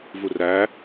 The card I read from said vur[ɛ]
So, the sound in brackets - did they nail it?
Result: no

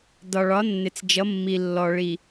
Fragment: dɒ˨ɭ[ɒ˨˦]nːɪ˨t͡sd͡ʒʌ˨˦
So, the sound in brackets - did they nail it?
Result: yes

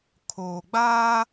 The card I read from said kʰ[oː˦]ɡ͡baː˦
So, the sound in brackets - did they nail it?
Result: no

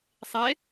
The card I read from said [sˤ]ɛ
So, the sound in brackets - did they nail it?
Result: yes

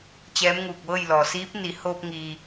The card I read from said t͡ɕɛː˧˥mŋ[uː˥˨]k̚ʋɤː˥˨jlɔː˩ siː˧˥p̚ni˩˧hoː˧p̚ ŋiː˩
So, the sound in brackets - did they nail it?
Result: no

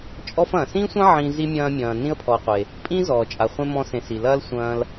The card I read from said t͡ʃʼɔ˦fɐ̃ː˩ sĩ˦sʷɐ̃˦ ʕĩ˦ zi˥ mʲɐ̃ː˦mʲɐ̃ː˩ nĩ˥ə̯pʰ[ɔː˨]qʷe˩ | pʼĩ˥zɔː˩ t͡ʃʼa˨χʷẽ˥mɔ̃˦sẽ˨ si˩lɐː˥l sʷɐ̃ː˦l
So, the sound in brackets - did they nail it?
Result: no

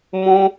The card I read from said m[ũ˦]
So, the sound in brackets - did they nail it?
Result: yes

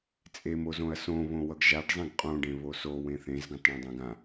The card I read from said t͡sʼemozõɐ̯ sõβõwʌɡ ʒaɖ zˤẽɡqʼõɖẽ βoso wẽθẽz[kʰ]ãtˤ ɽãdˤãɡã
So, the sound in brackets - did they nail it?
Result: no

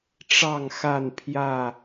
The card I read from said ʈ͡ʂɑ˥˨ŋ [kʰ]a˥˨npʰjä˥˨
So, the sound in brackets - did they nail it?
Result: no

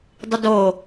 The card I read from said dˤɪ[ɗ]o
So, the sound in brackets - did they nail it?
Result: no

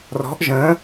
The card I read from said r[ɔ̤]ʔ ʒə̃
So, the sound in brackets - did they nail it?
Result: yes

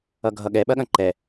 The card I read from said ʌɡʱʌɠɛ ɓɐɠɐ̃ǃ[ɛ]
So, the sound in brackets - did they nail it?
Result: yes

